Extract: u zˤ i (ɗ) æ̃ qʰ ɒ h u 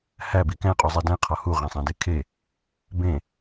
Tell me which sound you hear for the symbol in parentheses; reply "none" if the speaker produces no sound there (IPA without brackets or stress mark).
d